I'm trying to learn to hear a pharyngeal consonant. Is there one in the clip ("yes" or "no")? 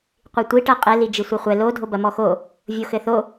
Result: no